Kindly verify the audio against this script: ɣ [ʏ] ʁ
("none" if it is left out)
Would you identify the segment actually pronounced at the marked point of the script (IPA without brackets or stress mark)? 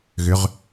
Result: ʏ